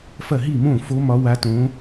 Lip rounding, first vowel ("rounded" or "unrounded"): unrounded